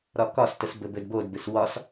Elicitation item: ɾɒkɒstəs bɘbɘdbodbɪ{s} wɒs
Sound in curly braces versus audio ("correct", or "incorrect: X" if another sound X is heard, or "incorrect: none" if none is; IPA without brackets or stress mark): correct